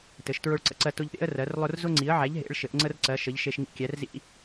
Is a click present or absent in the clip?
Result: present